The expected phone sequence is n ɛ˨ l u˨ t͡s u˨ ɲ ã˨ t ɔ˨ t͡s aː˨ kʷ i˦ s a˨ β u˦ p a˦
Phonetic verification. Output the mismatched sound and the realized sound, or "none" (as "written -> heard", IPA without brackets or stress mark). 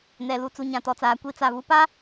s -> t͡s